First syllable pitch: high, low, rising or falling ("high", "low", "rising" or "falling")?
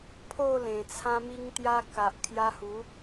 falling